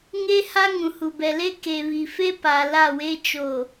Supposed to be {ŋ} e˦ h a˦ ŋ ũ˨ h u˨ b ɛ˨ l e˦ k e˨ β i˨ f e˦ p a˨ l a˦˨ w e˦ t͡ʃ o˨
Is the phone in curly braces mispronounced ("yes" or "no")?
no